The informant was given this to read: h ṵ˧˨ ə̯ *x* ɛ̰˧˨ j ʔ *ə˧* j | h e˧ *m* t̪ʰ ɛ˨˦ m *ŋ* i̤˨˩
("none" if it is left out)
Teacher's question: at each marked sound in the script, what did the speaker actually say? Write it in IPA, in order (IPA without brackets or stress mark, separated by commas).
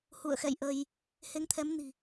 x, ə˧, ŋ, n